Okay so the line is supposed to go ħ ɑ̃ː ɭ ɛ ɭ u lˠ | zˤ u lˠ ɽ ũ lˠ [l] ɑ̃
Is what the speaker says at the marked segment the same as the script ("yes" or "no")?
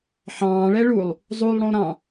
no